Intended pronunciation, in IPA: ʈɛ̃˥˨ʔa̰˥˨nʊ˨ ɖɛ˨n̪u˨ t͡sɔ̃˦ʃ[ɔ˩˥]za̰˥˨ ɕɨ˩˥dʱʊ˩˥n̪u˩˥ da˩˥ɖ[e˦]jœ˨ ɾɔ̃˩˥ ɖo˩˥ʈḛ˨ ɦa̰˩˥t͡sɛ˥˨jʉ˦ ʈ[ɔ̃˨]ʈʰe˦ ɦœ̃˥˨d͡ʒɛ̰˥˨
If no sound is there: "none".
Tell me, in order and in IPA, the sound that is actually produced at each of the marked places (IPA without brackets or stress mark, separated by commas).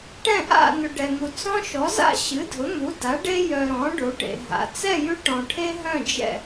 ɔ˩˥, e˦, ɔ̃˨